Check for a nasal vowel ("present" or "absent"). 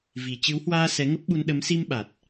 absent